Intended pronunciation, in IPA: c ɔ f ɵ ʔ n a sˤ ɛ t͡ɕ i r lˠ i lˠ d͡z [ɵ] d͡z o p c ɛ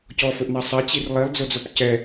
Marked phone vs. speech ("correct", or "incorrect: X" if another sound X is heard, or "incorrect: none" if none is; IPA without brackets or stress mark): incorrect: o